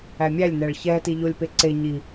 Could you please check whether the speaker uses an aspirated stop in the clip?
no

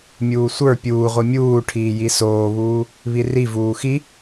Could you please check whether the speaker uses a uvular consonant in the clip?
yes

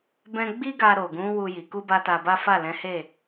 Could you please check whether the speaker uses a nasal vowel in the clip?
yes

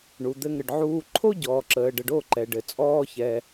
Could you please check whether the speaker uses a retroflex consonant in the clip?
yes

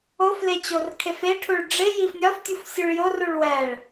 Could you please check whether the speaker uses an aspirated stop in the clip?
yes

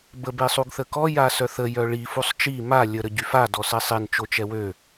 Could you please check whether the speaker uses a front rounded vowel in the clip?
yes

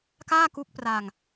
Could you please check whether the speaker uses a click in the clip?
no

